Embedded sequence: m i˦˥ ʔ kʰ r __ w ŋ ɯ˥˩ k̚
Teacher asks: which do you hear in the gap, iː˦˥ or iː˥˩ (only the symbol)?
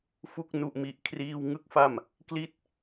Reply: iː˥˩